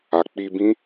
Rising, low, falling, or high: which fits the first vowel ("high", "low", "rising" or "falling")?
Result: low